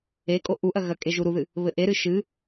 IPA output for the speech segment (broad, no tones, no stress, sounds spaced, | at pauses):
e kʼ o ʔ u ʔ ɐ ɣ ɐ kʼ e ʒ u ɾ u ð ɨ | β ɘ ʔ e ɾ ɨ ʃ ɨ